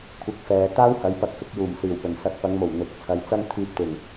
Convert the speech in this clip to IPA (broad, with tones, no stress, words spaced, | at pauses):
kʷʰɪ˧k̚fɛː˨ t̪aː˥whɐ˨˥j pɐ˧k̚fɪ˨˥k̚juː˨˩m siː˨˩wpɵ˨˩n sɐ˧t̚ pɐ˨˧ŋmo˨˩w n̪ʊ˨˥k̚t͡sʰɐ˧j t͡sɐ˥ŋt̪ʰiː˧p̚t̪ɪ˨˩ŋ